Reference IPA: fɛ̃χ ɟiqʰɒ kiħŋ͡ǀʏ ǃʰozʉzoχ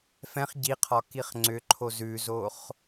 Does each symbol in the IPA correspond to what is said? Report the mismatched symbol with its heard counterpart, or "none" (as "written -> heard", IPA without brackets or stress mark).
ħ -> χ